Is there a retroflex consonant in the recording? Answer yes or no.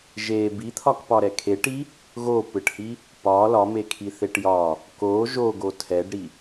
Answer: yes